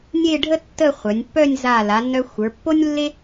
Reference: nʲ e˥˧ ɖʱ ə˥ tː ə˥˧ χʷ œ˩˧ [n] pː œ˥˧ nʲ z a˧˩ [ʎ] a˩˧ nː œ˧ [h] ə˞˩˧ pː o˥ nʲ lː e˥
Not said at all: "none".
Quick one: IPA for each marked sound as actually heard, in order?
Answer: nʲ, l, xʷ

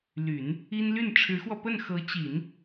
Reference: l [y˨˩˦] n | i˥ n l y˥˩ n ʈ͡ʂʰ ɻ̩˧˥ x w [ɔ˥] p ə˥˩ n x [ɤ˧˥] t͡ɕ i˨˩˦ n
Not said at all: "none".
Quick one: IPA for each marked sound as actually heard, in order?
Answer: y˨˩˦, ɔ˧, ɤ˧˥

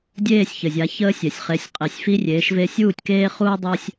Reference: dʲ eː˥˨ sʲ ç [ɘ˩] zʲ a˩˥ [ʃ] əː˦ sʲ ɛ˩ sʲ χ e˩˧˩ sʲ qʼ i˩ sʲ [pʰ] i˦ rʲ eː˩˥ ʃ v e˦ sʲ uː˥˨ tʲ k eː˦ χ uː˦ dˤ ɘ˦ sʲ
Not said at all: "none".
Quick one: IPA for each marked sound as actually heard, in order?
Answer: ɘ˩, ç, f

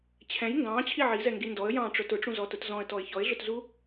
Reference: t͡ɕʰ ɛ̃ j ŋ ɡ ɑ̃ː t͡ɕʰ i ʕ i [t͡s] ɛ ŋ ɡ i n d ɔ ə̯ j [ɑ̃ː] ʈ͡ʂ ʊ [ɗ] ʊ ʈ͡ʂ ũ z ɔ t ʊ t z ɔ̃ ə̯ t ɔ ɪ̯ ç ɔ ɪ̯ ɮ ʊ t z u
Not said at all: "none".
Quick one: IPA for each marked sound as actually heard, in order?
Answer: z, ɑ̃ː, t

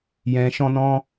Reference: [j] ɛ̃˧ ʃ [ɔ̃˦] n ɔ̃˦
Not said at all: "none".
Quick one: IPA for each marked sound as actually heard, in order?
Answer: j, ɔ̃˦

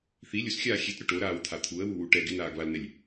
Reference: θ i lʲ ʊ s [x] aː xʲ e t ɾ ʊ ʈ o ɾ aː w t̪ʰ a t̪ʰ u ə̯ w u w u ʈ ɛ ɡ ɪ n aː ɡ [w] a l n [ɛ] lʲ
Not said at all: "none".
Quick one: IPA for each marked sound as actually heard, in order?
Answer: xʲ, β, ɛ

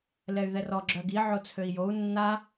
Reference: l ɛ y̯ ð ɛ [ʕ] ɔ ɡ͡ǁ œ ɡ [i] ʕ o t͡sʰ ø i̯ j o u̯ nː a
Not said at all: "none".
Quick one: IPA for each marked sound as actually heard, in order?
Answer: r, i

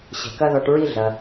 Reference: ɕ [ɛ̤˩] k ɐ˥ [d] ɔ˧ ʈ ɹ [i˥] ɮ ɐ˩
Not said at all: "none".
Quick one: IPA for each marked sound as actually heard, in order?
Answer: ɛ̤˩, ð, i˥

